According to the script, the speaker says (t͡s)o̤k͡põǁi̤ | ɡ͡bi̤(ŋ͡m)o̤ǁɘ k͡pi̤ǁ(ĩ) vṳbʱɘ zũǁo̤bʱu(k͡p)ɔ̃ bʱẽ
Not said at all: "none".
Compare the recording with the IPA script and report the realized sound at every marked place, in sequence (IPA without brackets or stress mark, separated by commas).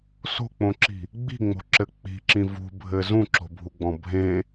s, ŋ͡m, ĩ, ɡ͡b